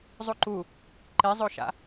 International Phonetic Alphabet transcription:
zˤ u ǃ u | ǃ e zˤ o ʃ a̰

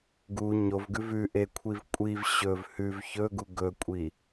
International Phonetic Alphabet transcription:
ɡ u ɲ o v ɡ ʉ v ʉ ʔ e kʷʰ i v kʷʼ i v ɕ ɵ v h ʉ v ç ɵ ɡ u ɡ ɵ kʷʼ i

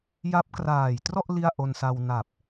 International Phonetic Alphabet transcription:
j a˦˥ p̚ k r aː˨˩ j t r ɔ˥˩ ʔ l i˥˩ a̯ ʔ o˧ n s a˧ w n a˨˩ p̚

